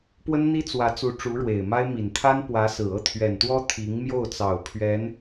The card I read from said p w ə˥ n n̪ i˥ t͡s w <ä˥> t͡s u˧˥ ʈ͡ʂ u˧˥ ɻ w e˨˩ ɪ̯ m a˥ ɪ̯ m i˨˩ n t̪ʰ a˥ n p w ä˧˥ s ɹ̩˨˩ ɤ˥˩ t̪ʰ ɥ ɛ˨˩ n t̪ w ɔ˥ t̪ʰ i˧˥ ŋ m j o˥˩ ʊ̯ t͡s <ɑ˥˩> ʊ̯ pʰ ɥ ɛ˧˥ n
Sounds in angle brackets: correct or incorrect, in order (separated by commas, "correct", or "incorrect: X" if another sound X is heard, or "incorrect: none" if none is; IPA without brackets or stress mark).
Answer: incorrect: ä˧˥, incorrect: ɑ˨˩